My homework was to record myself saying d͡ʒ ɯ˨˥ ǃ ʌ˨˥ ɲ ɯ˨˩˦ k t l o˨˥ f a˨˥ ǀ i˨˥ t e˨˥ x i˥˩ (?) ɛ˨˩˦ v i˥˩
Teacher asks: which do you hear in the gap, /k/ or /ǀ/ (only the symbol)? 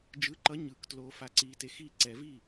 ǀ